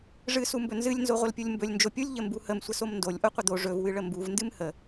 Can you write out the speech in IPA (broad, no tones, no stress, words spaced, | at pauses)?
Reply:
ʐɨ sumbɵnzɨlʲ nzoʁʷəlpʲulʲmbɵlʲ nd͡ʒopʲulʲ ʎəmbuhəm sʷəsomndolʲ ʔoqʷəd̪o ʐɵv wɨɭəmbuv ndɨmhə